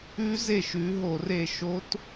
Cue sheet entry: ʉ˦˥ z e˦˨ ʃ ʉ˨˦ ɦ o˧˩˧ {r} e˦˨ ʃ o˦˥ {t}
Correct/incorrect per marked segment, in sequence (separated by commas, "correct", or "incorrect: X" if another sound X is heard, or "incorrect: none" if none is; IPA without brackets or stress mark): correct, correct